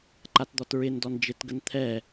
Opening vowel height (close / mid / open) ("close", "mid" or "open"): open